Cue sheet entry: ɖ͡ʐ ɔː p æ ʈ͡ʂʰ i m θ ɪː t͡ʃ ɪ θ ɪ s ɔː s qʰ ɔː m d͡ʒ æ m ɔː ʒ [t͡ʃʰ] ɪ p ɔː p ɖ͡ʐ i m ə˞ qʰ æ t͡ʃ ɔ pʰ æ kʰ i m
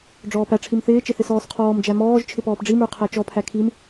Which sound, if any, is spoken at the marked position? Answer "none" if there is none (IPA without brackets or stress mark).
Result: t͡ʃʰ